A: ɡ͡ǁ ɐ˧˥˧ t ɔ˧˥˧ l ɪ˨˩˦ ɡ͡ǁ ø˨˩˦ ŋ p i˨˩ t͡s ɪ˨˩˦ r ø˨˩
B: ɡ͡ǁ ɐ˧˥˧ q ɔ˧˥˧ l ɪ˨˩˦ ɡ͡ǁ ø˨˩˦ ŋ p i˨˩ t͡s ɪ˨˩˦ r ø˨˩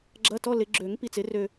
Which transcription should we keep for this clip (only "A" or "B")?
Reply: A